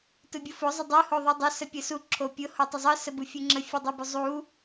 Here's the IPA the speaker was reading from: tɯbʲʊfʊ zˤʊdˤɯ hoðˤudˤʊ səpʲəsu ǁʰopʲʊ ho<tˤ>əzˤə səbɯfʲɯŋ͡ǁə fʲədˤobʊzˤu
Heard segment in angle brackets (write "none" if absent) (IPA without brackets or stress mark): tˤ